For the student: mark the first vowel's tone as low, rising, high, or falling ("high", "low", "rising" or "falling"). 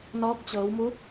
rising